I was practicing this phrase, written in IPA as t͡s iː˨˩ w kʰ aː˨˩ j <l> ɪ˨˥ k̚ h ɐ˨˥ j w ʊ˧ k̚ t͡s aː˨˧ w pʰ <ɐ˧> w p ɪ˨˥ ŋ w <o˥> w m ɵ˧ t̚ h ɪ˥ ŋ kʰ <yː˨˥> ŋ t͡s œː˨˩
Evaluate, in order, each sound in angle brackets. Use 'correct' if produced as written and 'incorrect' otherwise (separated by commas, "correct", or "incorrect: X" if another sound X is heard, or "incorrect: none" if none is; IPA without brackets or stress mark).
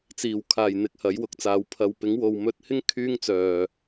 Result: incorrect: n̪, incorrect: ɐ˨, incorrect: o˨, incorrect: yː˥